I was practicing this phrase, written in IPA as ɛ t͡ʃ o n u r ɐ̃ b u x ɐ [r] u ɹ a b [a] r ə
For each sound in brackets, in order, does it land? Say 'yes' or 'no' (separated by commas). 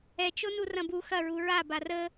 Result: no, yes